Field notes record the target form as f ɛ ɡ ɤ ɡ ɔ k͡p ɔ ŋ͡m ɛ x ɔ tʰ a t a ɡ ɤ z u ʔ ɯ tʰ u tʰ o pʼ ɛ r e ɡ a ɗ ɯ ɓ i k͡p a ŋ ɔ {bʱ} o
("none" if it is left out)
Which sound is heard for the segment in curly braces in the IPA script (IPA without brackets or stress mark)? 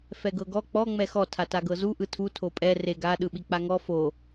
f